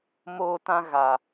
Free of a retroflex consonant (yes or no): yes